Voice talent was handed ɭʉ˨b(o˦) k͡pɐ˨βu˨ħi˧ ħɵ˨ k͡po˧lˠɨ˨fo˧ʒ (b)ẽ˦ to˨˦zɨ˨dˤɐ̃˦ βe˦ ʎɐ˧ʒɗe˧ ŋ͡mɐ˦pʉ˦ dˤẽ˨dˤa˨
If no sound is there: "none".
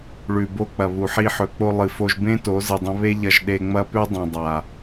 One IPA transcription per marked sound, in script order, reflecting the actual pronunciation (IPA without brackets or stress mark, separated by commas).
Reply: o˧, b